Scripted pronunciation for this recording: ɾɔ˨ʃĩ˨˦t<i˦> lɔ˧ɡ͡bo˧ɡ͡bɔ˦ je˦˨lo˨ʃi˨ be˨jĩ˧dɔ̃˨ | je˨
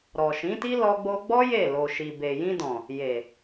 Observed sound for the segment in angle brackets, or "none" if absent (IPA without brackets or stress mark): i˦